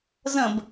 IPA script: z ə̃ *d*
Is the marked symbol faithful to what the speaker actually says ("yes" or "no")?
no